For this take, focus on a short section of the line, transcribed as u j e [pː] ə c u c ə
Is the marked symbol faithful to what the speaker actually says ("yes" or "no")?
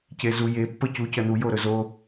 yes